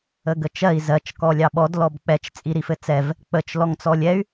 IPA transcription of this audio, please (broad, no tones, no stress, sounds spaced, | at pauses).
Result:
ə ɡ ə t͡ʃ ɜ i̯ z ɜ t͡ʃ k ɔ lʲ ɑ ɓ ɔ d l ɔ b k͡p ɛ t͡ʃ t͡sʼ i ɾ i f ɘ t͡s ɛ v | k͡p ə t͡ʃ l ɔ ŋ t͡s ɔ lʲ ɛ y̯